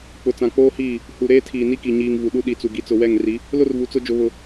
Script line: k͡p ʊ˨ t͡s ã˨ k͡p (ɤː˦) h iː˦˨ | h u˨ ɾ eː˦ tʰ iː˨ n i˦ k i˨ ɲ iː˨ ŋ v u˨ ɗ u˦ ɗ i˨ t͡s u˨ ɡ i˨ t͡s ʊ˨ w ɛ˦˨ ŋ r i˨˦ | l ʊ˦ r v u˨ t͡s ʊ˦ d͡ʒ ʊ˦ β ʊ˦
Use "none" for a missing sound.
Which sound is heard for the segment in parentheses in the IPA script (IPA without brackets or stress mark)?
oː˦